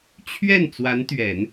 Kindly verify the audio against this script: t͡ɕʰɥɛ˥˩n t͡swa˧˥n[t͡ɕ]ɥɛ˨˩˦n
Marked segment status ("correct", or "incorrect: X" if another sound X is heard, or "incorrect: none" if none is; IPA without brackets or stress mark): incorrect: t̪